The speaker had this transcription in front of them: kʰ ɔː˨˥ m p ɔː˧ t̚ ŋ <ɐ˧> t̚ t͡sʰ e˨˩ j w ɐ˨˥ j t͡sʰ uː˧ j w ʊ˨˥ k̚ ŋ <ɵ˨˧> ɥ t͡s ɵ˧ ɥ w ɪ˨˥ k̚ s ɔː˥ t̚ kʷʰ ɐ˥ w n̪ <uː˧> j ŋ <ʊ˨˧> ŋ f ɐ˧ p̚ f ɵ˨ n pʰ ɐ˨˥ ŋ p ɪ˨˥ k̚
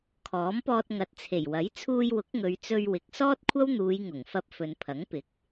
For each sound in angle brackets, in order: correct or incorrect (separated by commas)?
incorrect, correct, incorrect, incorrect